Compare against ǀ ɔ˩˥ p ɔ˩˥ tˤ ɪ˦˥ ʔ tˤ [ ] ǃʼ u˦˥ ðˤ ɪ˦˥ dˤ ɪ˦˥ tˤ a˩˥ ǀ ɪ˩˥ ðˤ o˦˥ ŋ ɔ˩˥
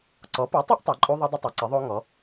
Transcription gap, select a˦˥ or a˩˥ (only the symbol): a˩˥